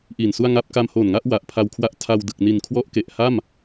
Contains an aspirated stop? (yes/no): yes